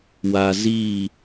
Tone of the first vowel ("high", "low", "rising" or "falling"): low